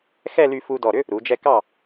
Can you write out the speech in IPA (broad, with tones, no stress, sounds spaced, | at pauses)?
x ɛ˥˧ l y˧ f u˧ d ɔ˧˩ ɾ ʏ˥ | ɾ u˩˧ d͡ʒ ɛ˧ k ɑ˧˩